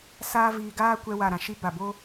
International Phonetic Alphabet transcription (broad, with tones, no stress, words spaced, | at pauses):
saː˦viː˧ ɡaː˦kʷɛ˧ wa˨ɾã˨ʃi˧ ba˨bo˦